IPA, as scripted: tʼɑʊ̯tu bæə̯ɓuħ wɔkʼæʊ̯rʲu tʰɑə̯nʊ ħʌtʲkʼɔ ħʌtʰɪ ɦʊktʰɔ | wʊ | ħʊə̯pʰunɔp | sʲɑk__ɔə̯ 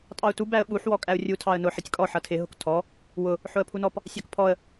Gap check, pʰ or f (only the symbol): pʰ